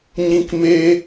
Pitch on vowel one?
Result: high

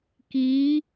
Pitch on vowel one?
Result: rising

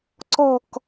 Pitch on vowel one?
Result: falling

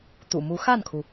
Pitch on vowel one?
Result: low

